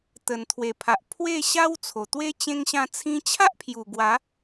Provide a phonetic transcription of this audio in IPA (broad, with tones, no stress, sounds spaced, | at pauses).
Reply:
t̪ ə˨˩ n t̪ʰ w e˨˩ pʰ a˨ ʔ pʰ w e˥˧ ɕ a˦ w t͡sʰ o˨˩ t̪ w e˦ t͡ɕ ẽ˧ ŋ ɕ ã˧ t͡sʰ ĩ˧ t͡ɕʰ a˦ ʔ pʰ j u˨˩ ɡ w a˨˦